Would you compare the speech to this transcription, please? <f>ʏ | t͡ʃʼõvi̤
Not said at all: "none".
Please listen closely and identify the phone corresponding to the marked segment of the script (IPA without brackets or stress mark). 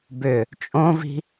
b